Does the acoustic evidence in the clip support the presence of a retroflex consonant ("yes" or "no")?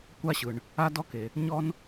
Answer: yes